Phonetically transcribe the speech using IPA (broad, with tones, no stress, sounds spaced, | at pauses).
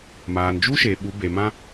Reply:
m aː˨ n d͡ʒ u˦ ʃ e˨ ɓ u˨˦ b e˨ m ã˦